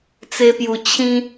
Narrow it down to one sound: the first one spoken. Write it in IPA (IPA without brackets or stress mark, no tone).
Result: t͡s